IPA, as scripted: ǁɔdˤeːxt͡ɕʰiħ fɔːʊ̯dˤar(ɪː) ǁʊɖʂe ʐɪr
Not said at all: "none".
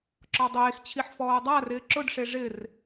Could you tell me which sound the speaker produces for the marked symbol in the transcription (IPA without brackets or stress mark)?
ɪː